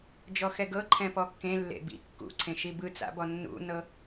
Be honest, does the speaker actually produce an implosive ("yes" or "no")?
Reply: no